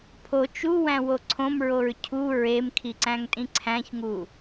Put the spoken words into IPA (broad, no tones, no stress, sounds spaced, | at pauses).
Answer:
pʰ o t͡ʃ u w æ̃ w o ǀʰ õ m ɹ o ɹ cʰ u ɹ e m kʰ i ǀ æ̃ ŋ tʼ ĩ ǀʰ æ̃ ç ŋ u